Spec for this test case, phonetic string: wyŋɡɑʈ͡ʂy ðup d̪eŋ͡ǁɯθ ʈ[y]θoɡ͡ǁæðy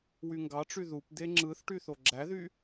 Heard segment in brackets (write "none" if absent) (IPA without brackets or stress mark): y